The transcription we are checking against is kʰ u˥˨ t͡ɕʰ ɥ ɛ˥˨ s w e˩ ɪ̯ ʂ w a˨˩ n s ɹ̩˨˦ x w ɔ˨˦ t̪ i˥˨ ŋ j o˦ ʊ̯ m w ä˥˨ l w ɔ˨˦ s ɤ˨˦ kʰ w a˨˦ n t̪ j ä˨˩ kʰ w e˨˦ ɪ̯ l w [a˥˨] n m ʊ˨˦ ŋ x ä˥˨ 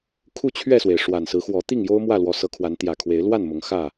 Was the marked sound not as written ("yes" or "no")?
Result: no